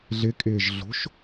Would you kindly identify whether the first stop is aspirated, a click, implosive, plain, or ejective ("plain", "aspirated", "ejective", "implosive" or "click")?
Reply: ejective